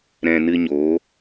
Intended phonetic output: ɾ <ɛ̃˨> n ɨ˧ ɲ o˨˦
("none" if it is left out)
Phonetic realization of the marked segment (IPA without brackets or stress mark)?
ɛ̃˨